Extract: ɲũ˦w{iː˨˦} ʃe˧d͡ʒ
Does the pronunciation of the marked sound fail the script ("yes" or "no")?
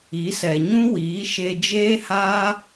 no